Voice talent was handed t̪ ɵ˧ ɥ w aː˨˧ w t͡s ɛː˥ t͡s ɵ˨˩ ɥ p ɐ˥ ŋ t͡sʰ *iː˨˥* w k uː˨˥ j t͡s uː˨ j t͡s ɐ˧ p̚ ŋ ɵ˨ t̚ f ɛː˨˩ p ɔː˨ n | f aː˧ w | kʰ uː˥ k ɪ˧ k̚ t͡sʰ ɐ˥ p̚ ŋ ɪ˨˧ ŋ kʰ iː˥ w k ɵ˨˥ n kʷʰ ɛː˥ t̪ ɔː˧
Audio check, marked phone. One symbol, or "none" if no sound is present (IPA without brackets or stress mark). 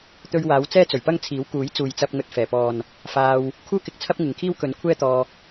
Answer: iː˨˥